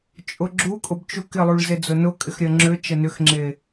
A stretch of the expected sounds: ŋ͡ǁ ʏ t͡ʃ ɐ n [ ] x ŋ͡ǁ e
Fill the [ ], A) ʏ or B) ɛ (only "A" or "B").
A